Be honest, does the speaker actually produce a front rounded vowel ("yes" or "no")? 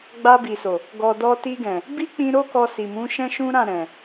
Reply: no